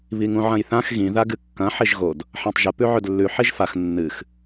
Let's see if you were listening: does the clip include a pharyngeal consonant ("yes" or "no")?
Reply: yes